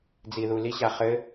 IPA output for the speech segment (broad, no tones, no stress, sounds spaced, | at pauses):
d͡z i ð u l i ɕ a χ ɘ